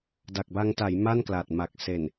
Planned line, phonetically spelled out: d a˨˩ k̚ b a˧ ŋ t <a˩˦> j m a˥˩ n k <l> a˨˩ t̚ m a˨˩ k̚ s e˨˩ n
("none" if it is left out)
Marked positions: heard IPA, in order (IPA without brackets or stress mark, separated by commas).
a˩˦, l